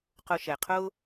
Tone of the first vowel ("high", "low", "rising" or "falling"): low